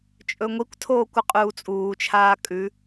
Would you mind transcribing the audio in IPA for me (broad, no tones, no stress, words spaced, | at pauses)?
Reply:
t͡ʃʼɵŋʷikʷtʰoːkʷ ɨqʼuːt͡sʼuːt͡ʃʰaː kʼʉ